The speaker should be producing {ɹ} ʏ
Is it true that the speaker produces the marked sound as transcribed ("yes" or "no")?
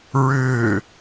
yes